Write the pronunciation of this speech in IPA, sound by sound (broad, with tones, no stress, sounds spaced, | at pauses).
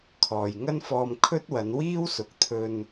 kʰ ɔː˨ j ŋ ɐ˥ n f ɔː˧ m kʰ ɵ˥ t̚ w ɐ˨˧ n w iː˥ w s ʊ˨˥ k̚ t̪ʰ ɵ˧ n